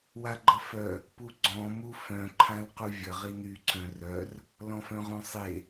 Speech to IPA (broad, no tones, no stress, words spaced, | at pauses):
waɡ͡ǃəfœ | puɡ͡ǀɔ̃ mufœ̃ ǃʰãlquvʲə ʁiny ǀœ̃rœr | lɔ̃fœ̃ʁõsˤe